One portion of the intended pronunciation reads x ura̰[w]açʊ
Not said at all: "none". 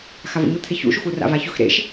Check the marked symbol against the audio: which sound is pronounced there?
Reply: v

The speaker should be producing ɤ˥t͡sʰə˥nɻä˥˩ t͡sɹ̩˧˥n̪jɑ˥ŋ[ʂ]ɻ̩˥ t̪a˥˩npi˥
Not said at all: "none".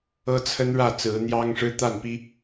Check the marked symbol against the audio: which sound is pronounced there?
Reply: ʂ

